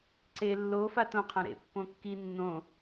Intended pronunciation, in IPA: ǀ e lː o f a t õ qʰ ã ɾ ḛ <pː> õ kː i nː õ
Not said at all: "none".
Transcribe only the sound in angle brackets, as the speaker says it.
pː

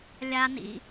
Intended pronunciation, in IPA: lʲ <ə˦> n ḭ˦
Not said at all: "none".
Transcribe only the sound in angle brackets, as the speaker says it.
a˦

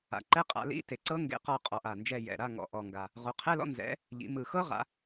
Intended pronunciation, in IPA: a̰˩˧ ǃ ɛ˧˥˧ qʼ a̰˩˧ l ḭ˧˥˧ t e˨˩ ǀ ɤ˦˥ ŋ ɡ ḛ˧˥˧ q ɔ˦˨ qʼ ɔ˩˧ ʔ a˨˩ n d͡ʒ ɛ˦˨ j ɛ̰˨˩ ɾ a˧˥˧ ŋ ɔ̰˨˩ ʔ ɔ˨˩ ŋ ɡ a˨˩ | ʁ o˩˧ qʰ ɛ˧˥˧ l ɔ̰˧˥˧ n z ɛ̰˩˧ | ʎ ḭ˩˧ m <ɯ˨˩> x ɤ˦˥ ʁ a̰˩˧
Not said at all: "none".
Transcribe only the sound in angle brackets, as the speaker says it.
ɯ˨˩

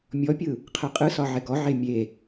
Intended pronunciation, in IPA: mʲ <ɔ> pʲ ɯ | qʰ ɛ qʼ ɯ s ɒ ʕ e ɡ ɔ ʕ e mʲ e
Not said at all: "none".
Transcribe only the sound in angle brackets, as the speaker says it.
ɔ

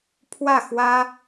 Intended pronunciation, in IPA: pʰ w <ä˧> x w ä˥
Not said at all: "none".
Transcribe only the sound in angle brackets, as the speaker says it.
ä˥˩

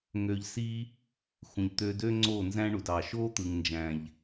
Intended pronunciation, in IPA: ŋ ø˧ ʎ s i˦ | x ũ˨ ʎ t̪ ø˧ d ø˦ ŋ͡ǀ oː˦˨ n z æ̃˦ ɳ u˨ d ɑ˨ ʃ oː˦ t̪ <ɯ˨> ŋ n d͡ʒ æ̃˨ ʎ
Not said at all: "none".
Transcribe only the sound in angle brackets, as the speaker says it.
ɯ˨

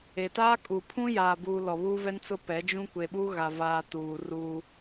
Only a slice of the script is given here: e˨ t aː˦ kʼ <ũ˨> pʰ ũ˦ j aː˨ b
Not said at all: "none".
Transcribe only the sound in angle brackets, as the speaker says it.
u˨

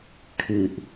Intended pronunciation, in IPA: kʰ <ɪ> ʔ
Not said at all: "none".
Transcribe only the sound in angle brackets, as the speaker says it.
ɨ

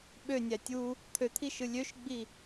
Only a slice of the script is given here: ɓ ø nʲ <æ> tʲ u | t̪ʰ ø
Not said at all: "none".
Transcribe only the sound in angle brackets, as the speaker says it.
æ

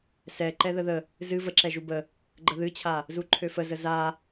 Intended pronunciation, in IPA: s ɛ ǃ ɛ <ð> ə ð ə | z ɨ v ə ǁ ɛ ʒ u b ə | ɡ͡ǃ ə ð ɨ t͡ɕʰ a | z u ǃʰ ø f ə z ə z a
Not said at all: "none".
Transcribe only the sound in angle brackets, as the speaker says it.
ð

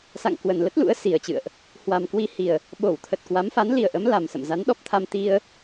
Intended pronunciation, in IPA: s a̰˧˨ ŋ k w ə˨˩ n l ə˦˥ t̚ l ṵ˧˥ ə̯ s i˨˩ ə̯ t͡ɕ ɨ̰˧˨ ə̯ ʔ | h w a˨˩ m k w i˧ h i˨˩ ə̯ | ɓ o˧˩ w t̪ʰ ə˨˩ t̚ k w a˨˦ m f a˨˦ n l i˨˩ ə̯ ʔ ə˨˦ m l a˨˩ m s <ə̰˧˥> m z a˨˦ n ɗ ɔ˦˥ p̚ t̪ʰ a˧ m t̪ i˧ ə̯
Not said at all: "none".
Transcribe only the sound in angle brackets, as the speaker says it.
ə̰˧˨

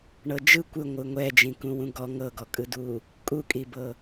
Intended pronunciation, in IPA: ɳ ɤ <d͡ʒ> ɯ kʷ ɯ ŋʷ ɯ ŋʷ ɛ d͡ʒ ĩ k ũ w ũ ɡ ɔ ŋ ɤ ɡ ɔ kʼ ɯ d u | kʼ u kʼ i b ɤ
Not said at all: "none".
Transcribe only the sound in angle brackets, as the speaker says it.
d͡ʒ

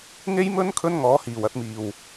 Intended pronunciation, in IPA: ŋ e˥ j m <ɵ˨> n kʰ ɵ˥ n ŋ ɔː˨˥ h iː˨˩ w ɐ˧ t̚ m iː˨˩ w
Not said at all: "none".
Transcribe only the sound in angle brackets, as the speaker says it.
ɵ˥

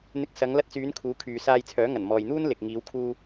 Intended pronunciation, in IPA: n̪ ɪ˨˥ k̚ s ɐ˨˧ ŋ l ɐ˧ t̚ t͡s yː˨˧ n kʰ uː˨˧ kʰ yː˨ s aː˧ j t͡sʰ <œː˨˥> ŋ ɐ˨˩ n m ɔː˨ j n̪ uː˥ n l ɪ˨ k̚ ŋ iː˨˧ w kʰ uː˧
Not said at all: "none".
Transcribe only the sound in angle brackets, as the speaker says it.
œː˨˥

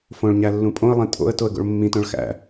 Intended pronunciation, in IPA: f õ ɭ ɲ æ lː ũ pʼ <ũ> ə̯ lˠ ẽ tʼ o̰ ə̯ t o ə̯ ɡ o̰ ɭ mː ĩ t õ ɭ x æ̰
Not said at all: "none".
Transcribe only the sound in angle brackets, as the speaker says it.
õ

